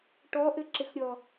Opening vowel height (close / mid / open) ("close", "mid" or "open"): mid